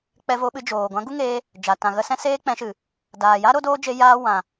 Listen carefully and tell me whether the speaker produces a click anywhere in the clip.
no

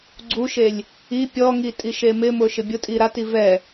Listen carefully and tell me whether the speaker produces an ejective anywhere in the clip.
yes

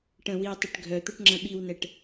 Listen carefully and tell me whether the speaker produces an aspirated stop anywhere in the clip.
no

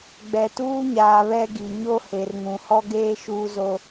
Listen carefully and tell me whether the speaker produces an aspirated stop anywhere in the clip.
no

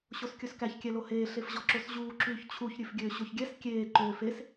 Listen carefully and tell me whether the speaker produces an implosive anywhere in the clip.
no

